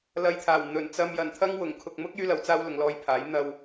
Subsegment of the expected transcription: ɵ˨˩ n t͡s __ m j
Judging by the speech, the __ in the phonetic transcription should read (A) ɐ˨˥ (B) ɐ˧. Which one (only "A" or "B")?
B